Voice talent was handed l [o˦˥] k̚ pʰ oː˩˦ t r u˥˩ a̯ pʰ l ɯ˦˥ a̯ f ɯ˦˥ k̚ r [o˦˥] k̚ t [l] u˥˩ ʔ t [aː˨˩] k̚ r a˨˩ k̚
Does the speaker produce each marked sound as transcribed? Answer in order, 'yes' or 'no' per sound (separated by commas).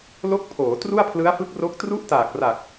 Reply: yes, yes, no, yes